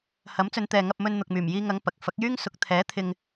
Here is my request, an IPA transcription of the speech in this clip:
h ɐ˨˥ m t͡s ɵ˨˧ n t̪ ɛː˨ ŋ ɐ˧ p̚ m ɵ˧ n n̪ ʊ˨ k̚ m yː˨˩ m j iː˧ ŋ ɐ˨˧ ŋ p ɐ˨ k̚ f ɐ˨˥ k̚ j yː˥ ŋ s ʊ˨˥ k̚ t̪ʰ ɛː˨˥ t̪ʰ ɪ˧ ŋ

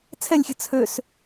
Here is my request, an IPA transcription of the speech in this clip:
t͡sʰ ɛ lʲ xʲ ə̤ t͡sʰ ø s

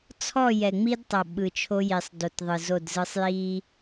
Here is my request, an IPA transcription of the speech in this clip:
t͡sʰ ɔ˦˨ j ɛ˨ ŋ͡m i˦ d tˤ ɤ˨ ɓ ɯ˨ t͡ʃʰ o˦ j i˨ sˤ d o˨ t ðˤ ɯ˨ z o˦˨ d z ɯ˦ sˤ j i˦

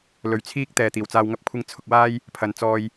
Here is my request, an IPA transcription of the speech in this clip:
l ɵ˨ ɥ t͡sʰ iː˥ k̚ t̪ ɛː˨ t̪ iː˨˩ w t͡s aː˧ w ŋ ɐ˥ p̚ kʷʰ ɪ˥ ŋ t͡sʰ ʊ˧ k̚ w aː˥ j | pʰ ɐ˨ n t͡s ɔː˧ j

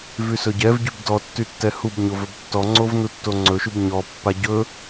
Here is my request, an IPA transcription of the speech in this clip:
v y s ɵ ɟ ɛ v ɟ y b d ɔ tː y tː ɛ h u b ɲ o v ɵ b tː ɔ ŋ͡ǀ o v n u tː o ŋ͡ǀ ɵ ʃ y b ɲ ɔ pː a ɟ ɵ

